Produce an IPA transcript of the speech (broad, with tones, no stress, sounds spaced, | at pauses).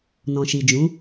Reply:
n ɔ̃˨ ʃ i˨ d͡ʒ ũ˨˦